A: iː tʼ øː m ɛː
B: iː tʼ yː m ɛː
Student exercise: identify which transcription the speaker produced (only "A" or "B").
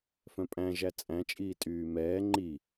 B